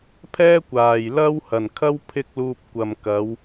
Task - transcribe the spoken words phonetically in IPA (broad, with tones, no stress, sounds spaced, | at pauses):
pʰ ɛː˥ kʷ aː˨˩ j l ɐ˥ w h ɐ˨˩ n kʰ ɐ˥ w pʰ ɪ˥ k̚ l uː˧ p̚ kʷ ɐ˨ m k ɐ˨˧ w